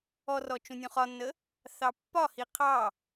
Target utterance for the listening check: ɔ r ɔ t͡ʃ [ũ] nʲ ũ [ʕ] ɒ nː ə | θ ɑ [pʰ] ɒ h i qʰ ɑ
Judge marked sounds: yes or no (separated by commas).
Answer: yes, no, no